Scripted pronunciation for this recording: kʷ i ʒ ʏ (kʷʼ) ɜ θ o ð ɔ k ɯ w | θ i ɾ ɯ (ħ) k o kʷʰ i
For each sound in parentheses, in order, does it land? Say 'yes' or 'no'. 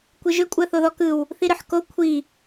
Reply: yes, yes

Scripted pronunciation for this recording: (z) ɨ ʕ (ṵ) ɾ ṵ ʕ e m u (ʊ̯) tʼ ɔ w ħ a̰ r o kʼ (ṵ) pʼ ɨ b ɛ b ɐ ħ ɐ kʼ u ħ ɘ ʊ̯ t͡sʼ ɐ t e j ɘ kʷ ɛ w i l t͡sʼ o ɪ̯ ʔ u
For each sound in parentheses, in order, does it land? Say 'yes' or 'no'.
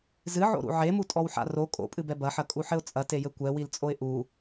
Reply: yes, no, no, no

